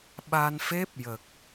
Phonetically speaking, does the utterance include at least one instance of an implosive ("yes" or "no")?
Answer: yes